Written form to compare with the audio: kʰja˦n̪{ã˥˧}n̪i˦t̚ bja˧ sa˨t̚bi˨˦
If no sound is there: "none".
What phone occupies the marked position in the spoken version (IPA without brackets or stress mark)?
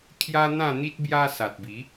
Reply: ã˥˧